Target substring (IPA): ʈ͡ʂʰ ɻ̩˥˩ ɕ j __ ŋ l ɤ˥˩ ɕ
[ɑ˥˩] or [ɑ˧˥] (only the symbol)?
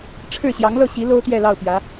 ɑ˧˥